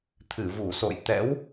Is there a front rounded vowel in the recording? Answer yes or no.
no